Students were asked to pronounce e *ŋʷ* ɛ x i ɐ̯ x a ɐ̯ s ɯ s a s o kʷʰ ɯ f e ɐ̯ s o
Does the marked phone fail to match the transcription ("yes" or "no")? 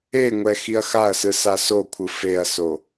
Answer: no